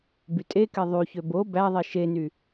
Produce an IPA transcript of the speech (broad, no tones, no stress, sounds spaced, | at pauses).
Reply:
b y tʼ e k e ðˤ y ç ø b o b æ ðˤ i ʃ e n y